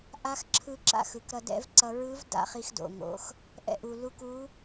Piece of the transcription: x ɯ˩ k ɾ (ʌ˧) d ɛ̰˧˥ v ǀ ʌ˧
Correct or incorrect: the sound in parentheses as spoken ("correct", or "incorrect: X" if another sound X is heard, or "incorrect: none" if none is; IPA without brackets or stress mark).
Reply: correct